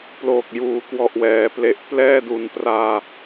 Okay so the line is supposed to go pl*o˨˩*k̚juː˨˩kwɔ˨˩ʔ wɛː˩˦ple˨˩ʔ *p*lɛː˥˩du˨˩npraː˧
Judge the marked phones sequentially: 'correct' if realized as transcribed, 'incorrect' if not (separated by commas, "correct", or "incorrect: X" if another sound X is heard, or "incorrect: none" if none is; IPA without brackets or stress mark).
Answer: incorrect: oː˨˩, correct